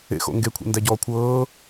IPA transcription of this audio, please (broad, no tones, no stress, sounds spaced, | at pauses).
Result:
ḛ x o̰ ŋ ɡ e kʷʰ ḛ n d æ ɟ ɔː kʷʰ ɤː